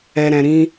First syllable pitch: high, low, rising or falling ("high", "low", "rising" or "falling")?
low